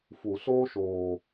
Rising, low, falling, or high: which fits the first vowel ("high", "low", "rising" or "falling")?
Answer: low